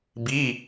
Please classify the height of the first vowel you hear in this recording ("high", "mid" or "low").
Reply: high